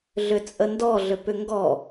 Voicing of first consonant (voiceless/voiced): voiced